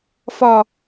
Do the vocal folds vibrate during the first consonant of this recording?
no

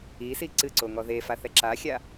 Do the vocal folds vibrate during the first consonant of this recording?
no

